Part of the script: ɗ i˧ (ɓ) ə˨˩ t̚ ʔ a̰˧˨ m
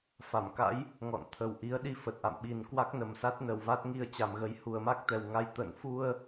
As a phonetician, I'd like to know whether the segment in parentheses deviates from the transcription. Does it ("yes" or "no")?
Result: yes